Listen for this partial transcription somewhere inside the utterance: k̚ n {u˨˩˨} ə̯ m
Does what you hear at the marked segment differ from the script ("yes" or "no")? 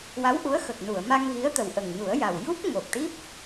no